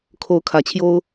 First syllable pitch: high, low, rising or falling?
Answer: rising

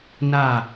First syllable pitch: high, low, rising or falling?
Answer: falling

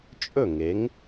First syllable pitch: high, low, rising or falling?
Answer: falling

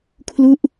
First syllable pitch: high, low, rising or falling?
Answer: falling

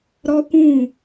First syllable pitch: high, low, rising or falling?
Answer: high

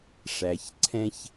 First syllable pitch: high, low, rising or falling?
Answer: low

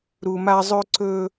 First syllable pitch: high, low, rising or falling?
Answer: low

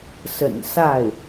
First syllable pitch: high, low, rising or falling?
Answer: low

